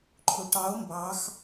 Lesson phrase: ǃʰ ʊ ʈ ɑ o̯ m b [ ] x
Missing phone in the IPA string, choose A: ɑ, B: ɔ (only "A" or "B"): A